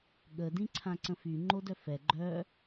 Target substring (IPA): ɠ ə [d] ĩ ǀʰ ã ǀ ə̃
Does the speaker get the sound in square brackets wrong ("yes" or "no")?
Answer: no